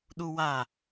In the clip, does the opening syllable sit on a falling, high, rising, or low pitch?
high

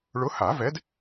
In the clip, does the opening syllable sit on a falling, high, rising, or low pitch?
rising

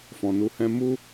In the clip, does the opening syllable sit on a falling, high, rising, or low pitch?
low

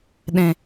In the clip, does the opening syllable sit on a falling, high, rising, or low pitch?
low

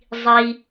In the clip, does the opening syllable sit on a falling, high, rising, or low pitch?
low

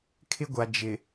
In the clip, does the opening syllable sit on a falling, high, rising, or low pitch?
high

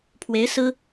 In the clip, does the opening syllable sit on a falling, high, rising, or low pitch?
rising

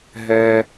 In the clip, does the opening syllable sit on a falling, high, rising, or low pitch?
low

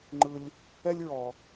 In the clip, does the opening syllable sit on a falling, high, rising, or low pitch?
high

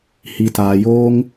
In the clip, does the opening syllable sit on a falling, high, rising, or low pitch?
low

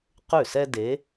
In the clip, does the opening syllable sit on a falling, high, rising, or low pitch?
falling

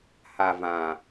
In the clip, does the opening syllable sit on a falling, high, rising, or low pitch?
low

